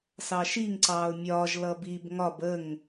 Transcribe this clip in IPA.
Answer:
s ɑ ʃ i ŋ ǀ ɑː ʊ̯ mʲ ɒː ʒ l ʌ b i b ŋ ɒ b ə ŋ

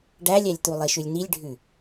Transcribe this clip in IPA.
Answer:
ɖ æ lʲ æ lʲ t̪ u lˠ i ʃ ʉ lʲ n i lʲ ɖʱ ʉ

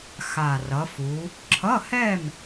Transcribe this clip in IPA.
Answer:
x a˨˩ r ʌ˩˧ f u˩˧ | ǁʰ ʌ˧˥˧ h ɛ˥˨ m

